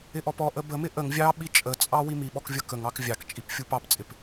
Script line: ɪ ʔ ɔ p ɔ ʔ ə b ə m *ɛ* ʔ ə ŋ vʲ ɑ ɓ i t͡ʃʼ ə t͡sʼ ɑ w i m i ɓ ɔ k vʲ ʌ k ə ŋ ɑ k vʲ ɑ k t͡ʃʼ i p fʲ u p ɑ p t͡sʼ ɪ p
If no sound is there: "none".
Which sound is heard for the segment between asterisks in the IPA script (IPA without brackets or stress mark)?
ɪ